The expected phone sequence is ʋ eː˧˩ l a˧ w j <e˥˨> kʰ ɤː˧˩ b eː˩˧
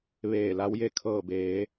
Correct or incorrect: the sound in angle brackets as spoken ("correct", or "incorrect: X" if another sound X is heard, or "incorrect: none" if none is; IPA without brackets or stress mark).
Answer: correct